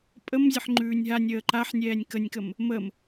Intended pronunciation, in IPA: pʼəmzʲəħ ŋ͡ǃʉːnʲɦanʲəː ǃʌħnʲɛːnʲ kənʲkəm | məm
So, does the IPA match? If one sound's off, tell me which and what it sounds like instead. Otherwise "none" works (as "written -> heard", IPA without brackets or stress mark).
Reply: ʌ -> a